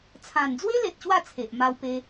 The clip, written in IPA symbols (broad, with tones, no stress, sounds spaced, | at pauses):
t͡sʰ ã˨˩ n d͡z w e˦ l e˨ t̚ ɕ w a˥˧ t͡sʰ e˨ ʔ m a˧ w p e˧